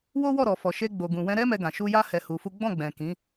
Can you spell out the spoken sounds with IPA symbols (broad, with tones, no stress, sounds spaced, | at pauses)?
w o˦ w ɔ˦˨ ɾ ɔ˨ f ɔ˨ ʃ e˧ ɡ͡b o˨ ɡ ũ˨ w ɛ̃˧ ɾ ɛ˦ m ɛ˧ ɡ ã˨ ʃ u˧ j a˦ h ɛ˧ h u˧ f u˦ ɡ͡b ɔ̃˦˨ ɡ͡b ɛ̃˨ k ĩ˨˦